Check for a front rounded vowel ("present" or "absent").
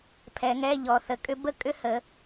present